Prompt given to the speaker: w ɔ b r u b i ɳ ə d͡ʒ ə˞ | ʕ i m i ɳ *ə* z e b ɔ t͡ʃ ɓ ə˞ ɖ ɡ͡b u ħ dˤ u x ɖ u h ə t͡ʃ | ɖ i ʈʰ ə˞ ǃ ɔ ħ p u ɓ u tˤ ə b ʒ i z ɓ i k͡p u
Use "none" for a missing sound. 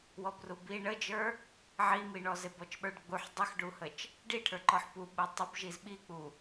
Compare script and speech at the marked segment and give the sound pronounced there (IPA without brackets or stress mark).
ɔ